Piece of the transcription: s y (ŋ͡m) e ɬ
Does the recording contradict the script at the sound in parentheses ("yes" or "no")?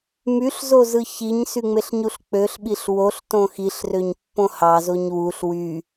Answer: no